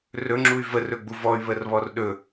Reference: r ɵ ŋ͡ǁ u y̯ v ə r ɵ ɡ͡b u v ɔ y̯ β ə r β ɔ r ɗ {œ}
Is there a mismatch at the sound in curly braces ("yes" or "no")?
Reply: yes